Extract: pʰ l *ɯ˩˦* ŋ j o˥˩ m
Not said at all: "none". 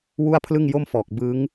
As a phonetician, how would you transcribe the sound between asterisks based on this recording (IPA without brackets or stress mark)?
ɯ˥˩